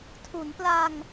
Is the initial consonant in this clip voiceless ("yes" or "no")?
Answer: yes